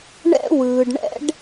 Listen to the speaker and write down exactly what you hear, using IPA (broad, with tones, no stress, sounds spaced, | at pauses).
ɳ ɛ̰˥ w ɯː˩ ɖ ɳ ɛ̰˥ ɖ